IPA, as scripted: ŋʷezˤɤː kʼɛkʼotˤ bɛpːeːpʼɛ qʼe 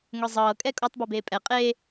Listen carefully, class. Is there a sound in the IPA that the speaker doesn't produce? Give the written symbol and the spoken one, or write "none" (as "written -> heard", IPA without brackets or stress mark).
pː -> b